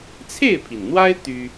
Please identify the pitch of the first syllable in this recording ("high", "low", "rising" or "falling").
falling